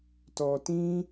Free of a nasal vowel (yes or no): no